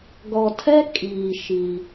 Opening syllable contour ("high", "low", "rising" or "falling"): low